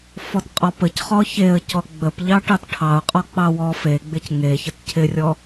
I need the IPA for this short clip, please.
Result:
f ɔ t qʼ ɔ p ə c χ ɔ ç e ə̯ c ɔ ɡ͡b ə p ʎ ɑ ʈ ɑ t ʈʰ ɑ ʊ̯ qʼ ɔ k͡p ɑ w ɔ f e ɡ͡b ɪ c ŋ e ç ə t cʰ ɪ rʲ ɔ

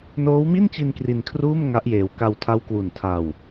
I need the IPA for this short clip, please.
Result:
n oː˦˥ w m i˥˩ n t͡ɕ i˧ n k r i˧ n kʰ r uː˥˩ m ŋ a˦˥ ʔ j eː˨˩ w k a˧ w tʰ a˦˥ w k w u˨˩ n tʰ a˧ w

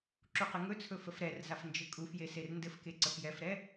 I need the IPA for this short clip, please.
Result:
ǁ u q ɘ ŋ ɵ t͡sʰ ɵ f ə f ɾ ɛ r z a f n d͡ʒ ɘ kʼ u f j e s e r n d ɘ f k e ǀ ə f j ɛ f ɾ ɛ

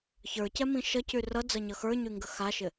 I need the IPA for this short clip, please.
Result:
ç ə˞ c ɛ m ĩ ʃ ʌ c y r ʌ d͡z ʌ ɲ ʌ x ə˞ ɲ y ŋ ɡ ə x a ʃ ɪ

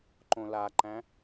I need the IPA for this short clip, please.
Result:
ǃ õ l a ǃ æ̃

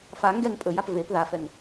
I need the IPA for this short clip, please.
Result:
f a ŋ ɡ ɛ ŋ pʼ ɵ j a p v e p ð a f ɛ ŋ

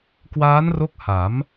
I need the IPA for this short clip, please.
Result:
k w aː˦˥ n r o˦˥ k̚ h a˩˦ m

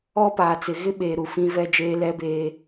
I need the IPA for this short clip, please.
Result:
ɔ˦ p aː˨ t͡s ɪ˨ ɣ ɪ˦ ɓ eː˨ ɾ u˨ f ĩ˦ v ɛ˦ d͡ʒ eː˦ l ɛ˦ b eː˦

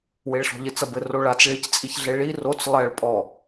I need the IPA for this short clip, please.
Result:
w e ɭ ɬ ɔ̤ ʎ ɘ t͡s ɐ b ɘ r o ɭ a t͡s ɭ i c t͡sʼ i ç ɮ e ɭ i r o t͡s lˠ ɛ ɭ pʼ ɔ

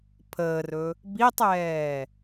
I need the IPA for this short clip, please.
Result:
pʰ əː r ɵ | b i tˤ ɛː

